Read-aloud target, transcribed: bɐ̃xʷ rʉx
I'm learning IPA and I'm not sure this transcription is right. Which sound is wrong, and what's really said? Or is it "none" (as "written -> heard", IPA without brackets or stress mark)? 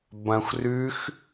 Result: none